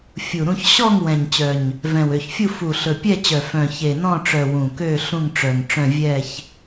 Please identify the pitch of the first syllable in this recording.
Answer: low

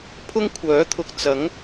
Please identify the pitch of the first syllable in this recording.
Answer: high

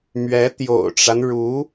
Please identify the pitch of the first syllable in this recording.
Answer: rising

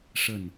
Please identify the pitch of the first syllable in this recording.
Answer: falling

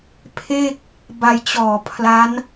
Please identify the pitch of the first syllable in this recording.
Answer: falling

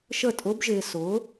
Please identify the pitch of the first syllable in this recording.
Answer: falling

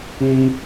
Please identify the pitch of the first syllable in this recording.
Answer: high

